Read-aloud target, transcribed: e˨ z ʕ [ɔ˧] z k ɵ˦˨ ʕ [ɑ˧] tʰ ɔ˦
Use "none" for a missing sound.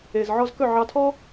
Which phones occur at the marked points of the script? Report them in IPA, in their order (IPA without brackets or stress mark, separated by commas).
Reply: ɔ˧, ɑ˧